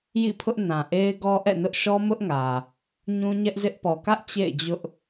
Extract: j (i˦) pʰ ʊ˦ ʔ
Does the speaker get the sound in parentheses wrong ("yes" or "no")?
yes